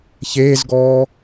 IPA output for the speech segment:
ç eː z ɡ ɔː

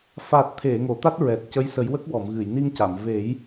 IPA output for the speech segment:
f a˨˩ t̚ t̪ʰ e˨˩˨ ŋ o˨˩˨ t̪ a˦˥ t̚ ɹ ɛ˨˩ t̚ c ə˧˥ j s ə˨˩˦ j w ə˦˥ k̚ w ɔ˨˩˨ m ɣ ɨ˨˩˨ j n i˧ ŋ c a˨˩˨ m v e˨˩˦ j

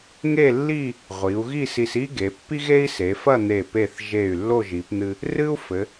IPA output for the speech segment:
ŋ e˥˧ lː i˥˧ | ʁʷ i˩˧ u̯ ɣ i˥˧ s i˧ s i˥ ɡ e˩˧ pː i˥ ɣ e˥ i̯ s e˩˧ f ɐ˥˧ n̪ e˧˩ p e˧˩ θ ʒ e˧˩ y̯ lː o˥˧ ʒ i˩˧ p n̪ ɨ˧ | r ɨ˥ u̯ f ɘ˩˧

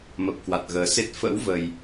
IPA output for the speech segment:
m ə˨˩ p̚ k w a˨˩ t̚ ɣ əː˨˩ s e˦˥ t̚ f ə̰˧˥ w v ə˨˩ j

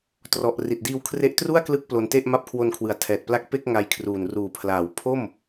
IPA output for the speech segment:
t r ɔ˨˩ ʔ r i˨˩ t̚ d iː˧ w kʰ r e˦˥ ʔ t r u˥˩ a̯ k l ɯ˦˥ k̚ p l o˧ n t e˥˩ ʔ m a˦˥ p̚ kʰ w o˧ n kʰ w ɯ˨˩ a̯ tʰ ɛː˨˩ t̚ p l a˦˥ k̚ p e˥˩ k̚ ŋ a˧ j kʰ r uː˨˩ n r uː˨˩ pʰ l aː˩˦ w pʰ o˥˩ m

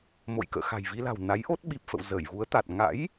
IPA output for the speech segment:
m o̰˧˨ j k ə̰ː˧˨ x a̤˨˩ j v i˧ l a̤˨˩ w n a˨˦ j ʔ o˦˥ t̚ ɓ i˨˩ p̚ f ə̰˧˨ w z ə˧˩ j v u˨˦ ə̯ t̪ a˨˩ t̚ ŋ a̰˧˥ j

